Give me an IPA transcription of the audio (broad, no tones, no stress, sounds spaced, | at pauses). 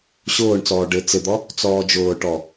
ɕ ʊː ɳ t͡s ɔː ɖ ɪ t͡s ɪ d̪ ɔ | t͡s ɔː d͡ʒ ʊː ʈ ɔ